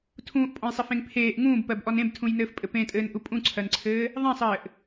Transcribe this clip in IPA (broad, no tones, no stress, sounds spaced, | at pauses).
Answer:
tʰ ũː ʔ pʼ ɔ̃ j sˤ e f ẽ ŋ pʰ eː ʔ ŋ ũː b p ɜ b ʔ ɔ n ẽ b tʰ ũ j n ɘː f pʼ ɘ p ẽ tʼ ɘː n ʔ u pʼ ũ ǀʰ ɜ n ǀʰ ɘː | ðˤ ẽ sˤ ɘː ʔ